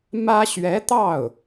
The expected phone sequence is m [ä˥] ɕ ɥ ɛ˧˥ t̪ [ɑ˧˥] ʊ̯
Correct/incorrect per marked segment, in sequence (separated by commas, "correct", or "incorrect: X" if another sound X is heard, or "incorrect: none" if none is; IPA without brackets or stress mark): correct, incorrect: ɑ˥˩